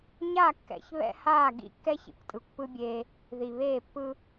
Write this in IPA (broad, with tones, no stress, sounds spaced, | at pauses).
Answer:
ɲ a˦˨ kː ɛ̰˨ ç β ɛ̰˦ h aː˦˨ ɡ ḭ˦ kː ɛ˦ ç ḭ˨ kʷ tʼ ɯ˨ kʷ p ɯ˦ bʲ eː˦ | ð i˨ β eː˦˨ pː ɯ˦